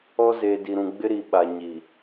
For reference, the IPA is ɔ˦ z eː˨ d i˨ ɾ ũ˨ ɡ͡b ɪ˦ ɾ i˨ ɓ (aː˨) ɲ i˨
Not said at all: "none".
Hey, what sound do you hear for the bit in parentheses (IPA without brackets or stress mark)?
a˨